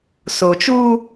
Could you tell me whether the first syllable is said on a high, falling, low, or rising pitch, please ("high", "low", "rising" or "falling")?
low